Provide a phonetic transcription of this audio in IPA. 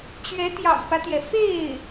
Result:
t͡ɕ ɥ ɛ˧˥ t̪ j ɑ̰˨˩ ŋ p ä˦ t̪ j ɛ˩ f e˥˩ ɪ̯

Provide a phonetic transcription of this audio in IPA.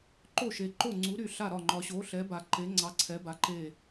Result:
ǃ o˥˨ ʃ e˨ ǃ o˥˨ ŋ͡ǀ u˨˥ ɾ y˥˨ ɬ a˥˨ ɾ ɒ˥˨ ŋ͡ǃ ɒ˨ ɕ o˨˥ ɬ ɛ˨˥ b a˨ ǃ e˨˥ ŋ͡ǀ ɑ˨˥ ǀʰ ɛ˨˥ b a˨˥ ǃ e˥˨

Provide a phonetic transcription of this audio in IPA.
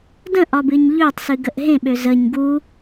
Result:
d ə̃ ʔ ɒ b ɨ ɲ ʎ ø tˤ s ɨ ɡ ə ʔ ɦ ẽ ɓ ø z ə ɲ ɡ u

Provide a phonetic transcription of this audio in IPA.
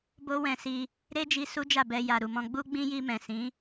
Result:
b o˦ w ɛ̃˧ s i˧ | ɾ e˦ d͡ʒ i˧ s u˦ d͡ʒ a˦˨ b ɛ˧ j a˨ ɾ u˨ m ɔ̃˧ ɡ͡b u˦ ɡ͡b ĩ˦ j i˧ m ɛ̃˨ s ĩ˨˦

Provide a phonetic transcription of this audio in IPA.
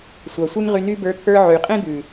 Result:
sʷ ɑ˨ sʷ e˦ ŋ ʁ y˧ n y˧ b ə˞˨˦ t̪ʰ ə˞˧ ʕ y˨ qʼ ẽ˦ d̪ ʉ˨

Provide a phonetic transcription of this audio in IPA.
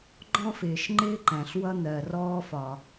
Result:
ɡ͡ǃ ɔ̃˥ f ɪː˩ ʃ ŋ͡ǃ ɪː˥ ǃ æ̃˩ ɬ w ʌ˥ n̪ ɜ˩ r ɔː˥ f ɒ˩

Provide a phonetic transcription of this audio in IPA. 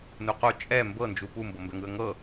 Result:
n u q o t͡ʃʼ ɛ m b ɤ n d͡ʒ u p u m b ɤ m b ɛ ŋ ɯ ə̯ ŋ ɤ

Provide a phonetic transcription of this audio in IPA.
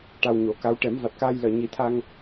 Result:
ʈ a˧ w ɲ o˨˩˦ k a˧˥ w ʈ ɛ˨˩˦ m v a˨˩ t̚ k aː˧ j l əː˨˩ ɲ i˨˩˦ t̪ʰ a˧ ŋ

